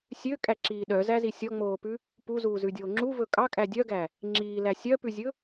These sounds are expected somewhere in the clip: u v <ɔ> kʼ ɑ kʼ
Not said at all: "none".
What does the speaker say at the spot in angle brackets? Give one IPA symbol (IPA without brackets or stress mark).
ɵ